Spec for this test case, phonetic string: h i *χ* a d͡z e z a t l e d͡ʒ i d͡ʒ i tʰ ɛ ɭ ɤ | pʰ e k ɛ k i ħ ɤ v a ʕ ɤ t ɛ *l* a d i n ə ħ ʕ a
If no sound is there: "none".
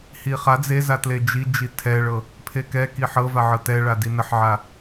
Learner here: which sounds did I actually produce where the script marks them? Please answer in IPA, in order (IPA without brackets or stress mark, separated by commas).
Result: χ, ɭ